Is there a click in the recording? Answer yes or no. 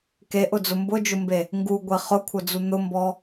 no